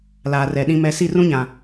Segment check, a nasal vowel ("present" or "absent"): present